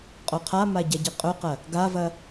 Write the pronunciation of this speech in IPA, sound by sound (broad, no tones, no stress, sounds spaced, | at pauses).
qʼ o qʰ a m a ɟ a ɟ e qʼ ɵ q ɐ | ɡ a v ɐ